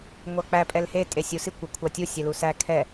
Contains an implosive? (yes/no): no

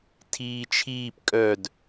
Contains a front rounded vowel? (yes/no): yes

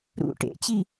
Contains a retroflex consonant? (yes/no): yes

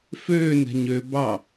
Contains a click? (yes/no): no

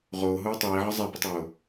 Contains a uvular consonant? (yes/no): yes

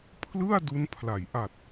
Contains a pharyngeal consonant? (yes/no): no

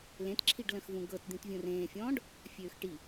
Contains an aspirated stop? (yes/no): yes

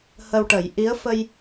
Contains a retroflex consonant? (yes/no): yes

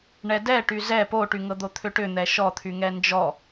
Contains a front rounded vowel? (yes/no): yes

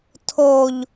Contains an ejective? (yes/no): no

